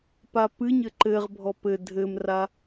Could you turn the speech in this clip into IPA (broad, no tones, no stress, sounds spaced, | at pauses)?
p a p ɨ ɲ ɘ ǃ ɘ ʁ bʱ ɔ p ɘ dʱ ɘ m r a